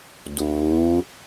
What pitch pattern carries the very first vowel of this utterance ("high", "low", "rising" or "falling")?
rising